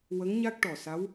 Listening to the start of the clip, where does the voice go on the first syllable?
rising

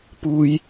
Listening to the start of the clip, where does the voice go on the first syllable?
low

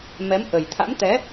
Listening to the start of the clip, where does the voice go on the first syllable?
rising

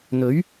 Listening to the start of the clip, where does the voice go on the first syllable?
rising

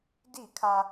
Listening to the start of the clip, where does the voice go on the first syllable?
falling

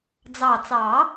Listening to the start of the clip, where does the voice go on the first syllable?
low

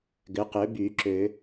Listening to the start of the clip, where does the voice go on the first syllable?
rising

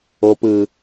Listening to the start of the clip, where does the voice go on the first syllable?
low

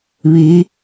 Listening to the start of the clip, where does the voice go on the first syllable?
rising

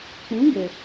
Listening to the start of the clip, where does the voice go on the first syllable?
rising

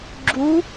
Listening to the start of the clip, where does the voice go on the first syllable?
rising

